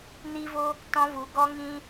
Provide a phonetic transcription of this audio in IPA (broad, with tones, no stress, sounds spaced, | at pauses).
n i˦ v o˦ | t ɔ̃˧ v u˨ ɡ ɔ˧ ŋ ĩ˧